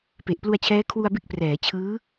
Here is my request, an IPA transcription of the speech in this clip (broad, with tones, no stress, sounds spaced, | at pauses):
p e˨˩ ʔ p l u˧ a̯ t͡ɕʰ ɛː˦˥ kʰ w u˧ a̯ b e˦˥ k̚ p r ɛː˩˦ t͡ɕʰ ɯː˦˥